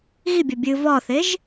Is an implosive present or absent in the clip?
absent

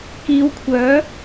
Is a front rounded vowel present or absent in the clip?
present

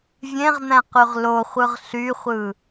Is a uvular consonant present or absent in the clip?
present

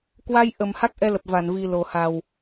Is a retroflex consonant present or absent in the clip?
absent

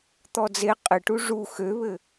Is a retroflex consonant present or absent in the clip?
present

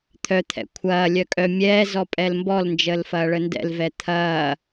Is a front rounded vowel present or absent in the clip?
present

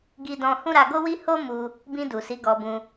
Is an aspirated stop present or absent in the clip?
absent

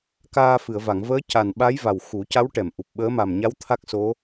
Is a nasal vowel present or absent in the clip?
absent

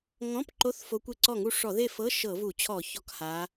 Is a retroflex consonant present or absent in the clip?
present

